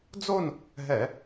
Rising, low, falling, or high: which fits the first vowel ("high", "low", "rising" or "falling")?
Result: falling